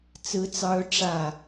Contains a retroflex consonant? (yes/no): yes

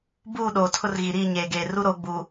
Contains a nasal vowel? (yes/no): no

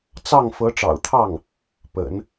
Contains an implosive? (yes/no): no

